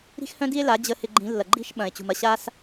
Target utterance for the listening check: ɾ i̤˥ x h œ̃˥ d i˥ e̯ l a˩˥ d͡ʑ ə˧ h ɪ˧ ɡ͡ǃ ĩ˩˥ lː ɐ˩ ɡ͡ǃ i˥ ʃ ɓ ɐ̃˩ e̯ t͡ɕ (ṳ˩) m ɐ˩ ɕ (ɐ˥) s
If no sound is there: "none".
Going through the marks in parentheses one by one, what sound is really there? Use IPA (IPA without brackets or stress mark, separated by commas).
ṳ˩, a˥